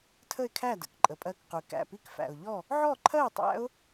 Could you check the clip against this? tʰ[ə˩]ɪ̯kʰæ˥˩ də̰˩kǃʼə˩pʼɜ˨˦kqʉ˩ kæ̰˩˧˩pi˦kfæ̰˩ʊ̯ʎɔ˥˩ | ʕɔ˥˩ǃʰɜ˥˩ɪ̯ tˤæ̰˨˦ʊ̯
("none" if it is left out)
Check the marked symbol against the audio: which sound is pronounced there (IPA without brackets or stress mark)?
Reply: ə˥˩